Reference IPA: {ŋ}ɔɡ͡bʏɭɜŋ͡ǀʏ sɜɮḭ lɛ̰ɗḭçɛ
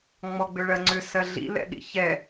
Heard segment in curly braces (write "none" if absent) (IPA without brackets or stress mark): ŋ͡m